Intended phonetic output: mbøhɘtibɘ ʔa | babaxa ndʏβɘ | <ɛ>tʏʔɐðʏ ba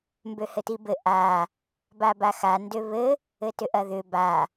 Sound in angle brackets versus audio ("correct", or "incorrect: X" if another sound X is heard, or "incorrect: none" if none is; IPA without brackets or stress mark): incorrect: ɘ